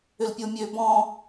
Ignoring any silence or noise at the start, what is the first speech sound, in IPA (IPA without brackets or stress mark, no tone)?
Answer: ʏ